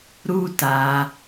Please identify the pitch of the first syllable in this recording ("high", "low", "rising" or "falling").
high